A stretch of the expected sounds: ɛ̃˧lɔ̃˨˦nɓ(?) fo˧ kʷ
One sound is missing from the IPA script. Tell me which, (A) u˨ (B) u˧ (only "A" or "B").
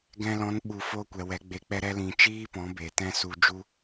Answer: A